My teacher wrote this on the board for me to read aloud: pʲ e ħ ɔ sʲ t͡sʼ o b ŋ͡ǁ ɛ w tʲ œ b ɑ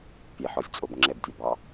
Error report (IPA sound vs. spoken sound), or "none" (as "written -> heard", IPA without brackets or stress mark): w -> b